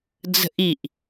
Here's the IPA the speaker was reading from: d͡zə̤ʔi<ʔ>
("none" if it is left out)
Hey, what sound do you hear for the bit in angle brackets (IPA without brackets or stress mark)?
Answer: ʔ